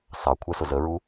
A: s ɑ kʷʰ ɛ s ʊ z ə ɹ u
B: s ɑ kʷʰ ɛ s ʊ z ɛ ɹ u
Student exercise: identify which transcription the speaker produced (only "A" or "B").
A